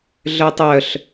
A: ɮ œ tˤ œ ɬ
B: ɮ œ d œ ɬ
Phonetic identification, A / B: A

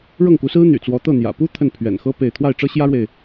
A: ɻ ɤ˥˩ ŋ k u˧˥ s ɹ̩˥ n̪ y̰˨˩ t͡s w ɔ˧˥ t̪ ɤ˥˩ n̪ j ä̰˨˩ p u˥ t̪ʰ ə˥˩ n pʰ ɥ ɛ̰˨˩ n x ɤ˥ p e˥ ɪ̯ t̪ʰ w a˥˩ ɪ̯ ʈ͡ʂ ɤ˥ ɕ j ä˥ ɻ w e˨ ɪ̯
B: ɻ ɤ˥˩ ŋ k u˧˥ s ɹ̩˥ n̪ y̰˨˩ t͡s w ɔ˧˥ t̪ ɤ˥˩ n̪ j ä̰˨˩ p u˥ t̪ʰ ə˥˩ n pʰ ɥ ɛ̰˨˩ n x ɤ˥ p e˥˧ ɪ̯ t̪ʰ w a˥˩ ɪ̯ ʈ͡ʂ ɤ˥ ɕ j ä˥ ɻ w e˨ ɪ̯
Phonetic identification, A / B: B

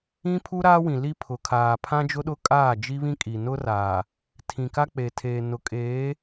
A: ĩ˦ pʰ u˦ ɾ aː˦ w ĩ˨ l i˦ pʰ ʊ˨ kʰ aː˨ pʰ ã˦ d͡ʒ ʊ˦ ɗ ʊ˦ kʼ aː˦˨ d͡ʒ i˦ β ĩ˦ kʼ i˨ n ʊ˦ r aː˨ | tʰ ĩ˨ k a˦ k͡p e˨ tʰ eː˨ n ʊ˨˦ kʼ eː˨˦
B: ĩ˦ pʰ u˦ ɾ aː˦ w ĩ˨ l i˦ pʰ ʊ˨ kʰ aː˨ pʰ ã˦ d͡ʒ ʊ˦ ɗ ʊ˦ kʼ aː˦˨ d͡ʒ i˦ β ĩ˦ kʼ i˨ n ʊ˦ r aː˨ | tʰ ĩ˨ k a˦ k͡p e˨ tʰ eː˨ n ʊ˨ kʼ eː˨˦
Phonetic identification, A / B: A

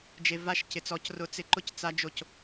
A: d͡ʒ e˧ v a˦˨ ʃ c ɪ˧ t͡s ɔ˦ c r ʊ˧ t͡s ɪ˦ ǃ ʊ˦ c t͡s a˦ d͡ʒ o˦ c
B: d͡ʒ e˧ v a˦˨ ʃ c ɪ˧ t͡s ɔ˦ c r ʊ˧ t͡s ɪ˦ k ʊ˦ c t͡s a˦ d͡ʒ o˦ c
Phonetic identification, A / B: A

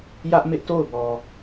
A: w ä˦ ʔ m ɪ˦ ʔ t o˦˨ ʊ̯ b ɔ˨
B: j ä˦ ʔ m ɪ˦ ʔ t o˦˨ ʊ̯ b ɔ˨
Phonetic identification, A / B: B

